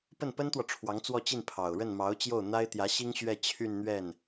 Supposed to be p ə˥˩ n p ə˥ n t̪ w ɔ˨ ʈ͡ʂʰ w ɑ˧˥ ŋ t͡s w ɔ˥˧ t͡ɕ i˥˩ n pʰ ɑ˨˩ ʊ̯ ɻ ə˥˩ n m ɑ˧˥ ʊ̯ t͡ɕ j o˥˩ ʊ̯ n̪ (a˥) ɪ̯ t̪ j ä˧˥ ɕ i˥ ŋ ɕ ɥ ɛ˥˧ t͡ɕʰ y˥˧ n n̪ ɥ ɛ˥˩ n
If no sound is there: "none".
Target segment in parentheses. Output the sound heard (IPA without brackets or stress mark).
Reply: a˥